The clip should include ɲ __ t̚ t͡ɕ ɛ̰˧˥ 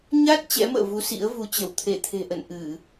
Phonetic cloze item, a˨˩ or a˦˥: a˦˥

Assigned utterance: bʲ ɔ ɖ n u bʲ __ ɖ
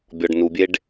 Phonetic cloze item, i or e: e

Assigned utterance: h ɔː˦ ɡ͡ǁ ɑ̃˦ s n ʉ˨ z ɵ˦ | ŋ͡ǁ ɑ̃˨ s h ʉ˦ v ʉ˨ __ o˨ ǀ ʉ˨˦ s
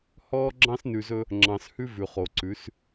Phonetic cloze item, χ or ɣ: χ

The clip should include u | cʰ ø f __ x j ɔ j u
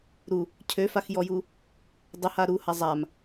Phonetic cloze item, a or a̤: a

